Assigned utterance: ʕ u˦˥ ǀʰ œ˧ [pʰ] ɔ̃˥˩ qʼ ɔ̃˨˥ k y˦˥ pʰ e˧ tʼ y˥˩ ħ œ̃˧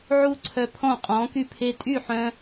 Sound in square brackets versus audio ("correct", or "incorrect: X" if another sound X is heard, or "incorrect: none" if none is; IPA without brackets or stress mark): correct